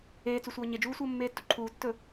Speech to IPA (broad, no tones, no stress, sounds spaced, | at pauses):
eː t͡s u sʷ ʌː ɲ e d͡ʒ uː sʷ ʌː mː eː tː u ǃʰ uː tː ɵ